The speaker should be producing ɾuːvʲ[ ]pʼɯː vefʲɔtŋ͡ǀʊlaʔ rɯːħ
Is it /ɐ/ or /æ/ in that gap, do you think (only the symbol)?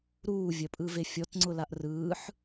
ɐ